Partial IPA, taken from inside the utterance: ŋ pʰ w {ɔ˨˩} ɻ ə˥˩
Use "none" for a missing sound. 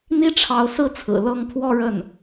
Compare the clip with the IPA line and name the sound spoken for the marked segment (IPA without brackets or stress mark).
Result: ɔ˥˧